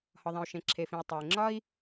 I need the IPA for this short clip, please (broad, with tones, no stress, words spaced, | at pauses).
hɒ˩ðˤẽ˩u̯ ʃẽ˩ǁʰe˩fĩ˩u̯ tˤe˩i̯ŋ͡ǁɒ˥i̯